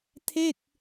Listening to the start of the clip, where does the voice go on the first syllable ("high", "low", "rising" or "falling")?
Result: falling